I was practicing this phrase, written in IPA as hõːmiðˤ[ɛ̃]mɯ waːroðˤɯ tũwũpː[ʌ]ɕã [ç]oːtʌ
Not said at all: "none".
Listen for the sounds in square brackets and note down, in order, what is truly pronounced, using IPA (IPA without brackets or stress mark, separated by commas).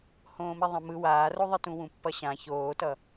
ɛ̃, ʌ, ç